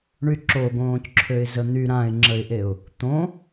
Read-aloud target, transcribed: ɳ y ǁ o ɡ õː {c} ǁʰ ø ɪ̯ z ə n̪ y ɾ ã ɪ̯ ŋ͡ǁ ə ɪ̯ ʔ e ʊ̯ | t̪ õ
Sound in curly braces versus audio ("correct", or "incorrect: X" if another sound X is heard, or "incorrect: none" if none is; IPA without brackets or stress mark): correct